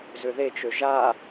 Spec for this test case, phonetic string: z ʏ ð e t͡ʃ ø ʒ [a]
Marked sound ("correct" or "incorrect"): correct